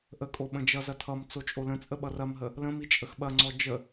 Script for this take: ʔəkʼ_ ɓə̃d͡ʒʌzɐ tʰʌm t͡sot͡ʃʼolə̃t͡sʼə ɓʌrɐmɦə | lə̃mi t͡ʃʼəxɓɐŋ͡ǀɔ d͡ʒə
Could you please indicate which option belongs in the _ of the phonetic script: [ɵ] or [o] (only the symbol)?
o